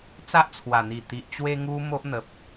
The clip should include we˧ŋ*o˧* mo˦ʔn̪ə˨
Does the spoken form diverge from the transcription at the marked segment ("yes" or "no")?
yes